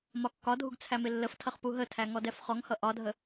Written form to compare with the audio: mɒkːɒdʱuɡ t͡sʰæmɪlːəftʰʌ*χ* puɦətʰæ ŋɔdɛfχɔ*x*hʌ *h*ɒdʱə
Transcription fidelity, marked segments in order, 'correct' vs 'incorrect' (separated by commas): correct, incorrect, incorrect